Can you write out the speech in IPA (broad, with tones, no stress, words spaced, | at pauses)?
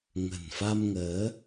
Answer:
ŋə̤˨˩nfa˧mŋəː˨˦